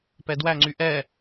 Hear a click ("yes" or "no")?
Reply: yes